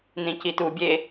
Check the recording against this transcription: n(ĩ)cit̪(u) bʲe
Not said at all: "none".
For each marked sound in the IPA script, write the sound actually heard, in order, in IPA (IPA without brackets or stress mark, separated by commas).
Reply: ĩ, u